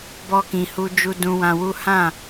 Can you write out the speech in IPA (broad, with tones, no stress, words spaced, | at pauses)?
bɔ˧kĩ˨ hu˧ d͡ʒu˧dũ˧wã˧wu˦ hã˦˨